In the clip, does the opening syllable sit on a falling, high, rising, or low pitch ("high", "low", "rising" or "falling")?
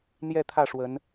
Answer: falling